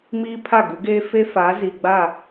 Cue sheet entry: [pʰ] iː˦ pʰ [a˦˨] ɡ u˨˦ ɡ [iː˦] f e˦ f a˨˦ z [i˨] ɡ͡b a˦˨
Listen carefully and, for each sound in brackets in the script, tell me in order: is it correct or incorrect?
incorrect: m, correct, incorrect: eː˦, correct

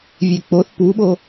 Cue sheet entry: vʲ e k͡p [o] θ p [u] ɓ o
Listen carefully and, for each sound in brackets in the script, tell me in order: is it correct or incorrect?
correct, correct

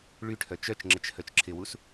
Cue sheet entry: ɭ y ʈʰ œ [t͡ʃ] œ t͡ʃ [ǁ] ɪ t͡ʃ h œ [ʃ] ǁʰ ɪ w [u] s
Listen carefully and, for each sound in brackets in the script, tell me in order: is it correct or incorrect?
correct, incorrect: ŋ͡ǁ, incorrect: t͡ʃ, correct

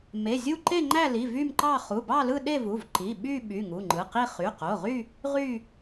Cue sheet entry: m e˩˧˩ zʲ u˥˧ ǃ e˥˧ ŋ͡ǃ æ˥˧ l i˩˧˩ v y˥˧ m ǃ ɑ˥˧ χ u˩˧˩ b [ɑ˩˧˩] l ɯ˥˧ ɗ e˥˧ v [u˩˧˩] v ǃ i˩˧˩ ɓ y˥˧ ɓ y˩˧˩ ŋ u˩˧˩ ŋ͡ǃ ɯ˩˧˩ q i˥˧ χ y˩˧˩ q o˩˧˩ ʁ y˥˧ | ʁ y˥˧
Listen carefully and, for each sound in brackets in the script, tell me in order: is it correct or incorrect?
incorrect: ɑ˥˧, correct

